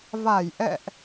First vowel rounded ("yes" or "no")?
no